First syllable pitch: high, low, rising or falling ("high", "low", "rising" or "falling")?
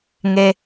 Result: low